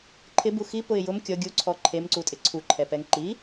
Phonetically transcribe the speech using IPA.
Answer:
ǃʰ ɪ b u x i p ʊ ɪ̯ j ʊ m kʲ ɔ ɡʲ u ǀʰ ɔ ǃʰ e m ǀ u tʼ ɪ ǀʰ u ǃʰ ɛ p ɛ ŋ ǃ i

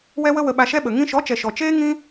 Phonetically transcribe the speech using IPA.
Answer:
w ɛ˦ w ə˦ w ə˧ ɓ a˧ ʃ ɛ˦ ɓ ə˨ ŋ ĩ˧ ʃ ɔ˨˦ t͡ʃ ɛ˨ ʃ ɔ˨ t͡ʃ eː˦ ŋ ĩ˦

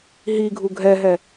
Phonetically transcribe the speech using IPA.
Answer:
ɦ i ɡʱ u ɡʱ ɛ ɦ ɛ

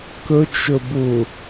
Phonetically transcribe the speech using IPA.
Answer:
k ə t͡ʃ ə b ʊ

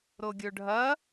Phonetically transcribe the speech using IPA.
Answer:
ɾ o ɡʲ ɵ ɖʱ ɐ

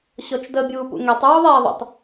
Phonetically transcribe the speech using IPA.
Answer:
ɕ ɔ t͡ʃ d ə bʲ uː p ṵ ŋ ɛ tˤ ɹ u ðˤ ɛː ðˤ ə̰ tˤ

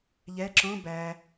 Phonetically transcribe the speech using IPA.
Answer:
ʎ ɛ ǁ õ b æ

